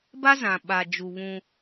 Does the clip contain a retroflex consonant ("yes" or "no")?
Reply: no